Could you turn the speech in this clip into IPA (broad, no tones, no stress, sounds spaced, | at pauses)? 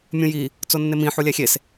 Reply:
mʲ ũ j i | t͡s o nː e m ĩ ħ u lʲ æ xʲ e s